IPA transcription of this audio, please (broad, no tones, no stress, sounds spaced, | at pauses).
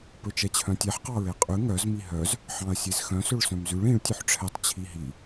p ɵ t͡ʃ ɛ t͡ɕʰ œ̃ tʲ ɛ ħ q ɑ ɹ e qʼ ʉ ŋ œ z m i ɦ œ z | ħ ɑ̃ ɐ̯ sʲ e z x œ̃ s ɵ ɭ s œ̃ m z ʉ ɭ ĩ ɭ tʲ ʉ ħ ʈ͡ʂʰ ɛ tˤ t͡ɕʰ i ɦ i